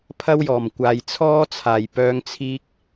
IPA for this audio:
pʰ ɐ˥ w j ɔː˨˩ m kʷ aː˨ j t͡sʰ ɔː˥ t͡sʰ aː˨˩ j p œː˧ ŋ t͡sʰ iː˧ k̚

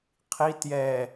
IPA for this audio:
qʰ i t j ɛ

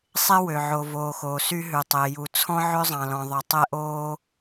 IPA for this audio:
sˤ e˥ w ø˨ ʕ o˨ v oː˨ x oː˨ s y˥ ɦ ʉ˨ tˤ e˨ j u˨ t͡sʰ ɔ̃˥ ʕ ø˥ zˤ ɑ̃˨ l ɔ̃˨ ðˤ œ˨ tˤ ɛ˥ ʔ oː˥

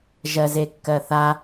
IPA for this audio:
ʒ ɜ z e kː ɜ θ a

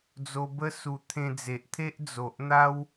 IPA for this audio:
d͡z o˧ b ə˦ s u˧ t̪ʰ ẽ˧ d͡z e˨ ʔ t̪ʰ e˦ ʔ d͡z o˨ ʔ n̪ a˦ w

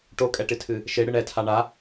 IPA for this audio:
ʈ o kʼ ɛ ʈ ɨ tʰ ɨ | ʃ e ɽ ɨ ɳ ɛ tʰ a ɳ a

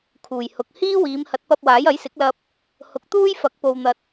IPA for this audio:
kʰ uː˨˩ j h ʊ˨ k̚ h iː˥ w iː˨˧ m h ɐ˨˥ t̚ p ɐ˧ p̚ w aː˨˥ j ɐ˨˥ j s ɪ˨˥ k̚ l ɐ˧ p̚ | h ʊ˨ k̚ t̪ uː˥ j f ɐ˨˥ k̚ p o˨ w n̪ ɐ˨ t̚

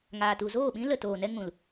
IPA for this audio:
ŋ aː˨ t u˨ z oː˦˨ ɓ ĩ˦ l ə˨ t oː˨ n ɛ˧ ŋ ũ˨ l

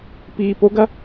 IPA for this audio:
p iː p o ɡ ɐ

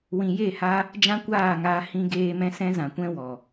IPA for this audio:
w ĩ˨ j e˦˨ h a˦ | d͡ʒ ã˦ kʷ aː˦˨ ŋ aː˧ h ĩ˦ ɡ eː˦ m ɛ̃˦ s ɛ̃˦ z ã˨ kʷ ɛ̃˦ w ɔ˨

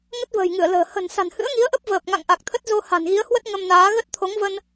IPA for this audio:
ŋ ə˦˥ t̚ v ə̤ː˨˩ j ŋ ɨ˧˩ ə̯ l ə̤ː˨˩ h ə̤˨˩ n s a̤˨˩ n h ɨ̰˧˥ ə̯ ŋ i˨˦ ə̯ ʔ ə˦˥ p̚ v əː˨˩ p̚ ŋ a̰˧˨ ŋ ʔ a˨˩ k̚ t̪ʰ ə˦˥ t̚ z o˧ h a̤˨˩ n ɣ i˨˦ ə̯ h w ə˦˥ t̚ ŋ ə˧ m n aː˨˦ ɣ ə˦˥ t̚ t̪ʰ o˨˦ ŋ v ə˧ n

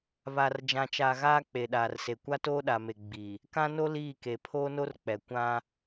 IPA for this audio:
β a˨ r d͡ʒ ã˨ t͡ʃ a˨ ɣ aː˦ k͡p e˨ ɗ aː˨ r s e˨ kʷ a˦ t oː˦ ɗ a˨ m e˨ ɡ͡b i˨ | k ã˦ n o˦ l iː˦˨ k e˨ pʰ oː˦ n o˦ r k͡p ɛ˨ kʷ ã˦

